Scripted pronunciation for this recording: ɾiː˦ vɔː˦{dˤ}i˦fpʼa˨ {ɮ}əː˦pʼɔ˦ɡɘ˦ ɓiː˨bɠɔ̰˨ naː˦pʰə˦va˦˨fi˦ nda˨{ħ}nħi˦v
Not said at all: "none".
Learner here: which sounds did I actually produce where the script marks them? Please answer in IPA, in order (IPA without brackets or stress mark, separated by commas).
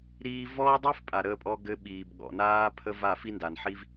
dˤ, ɾ, none